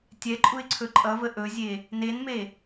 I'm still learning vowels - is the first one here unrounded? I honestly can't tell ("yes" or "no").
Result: yes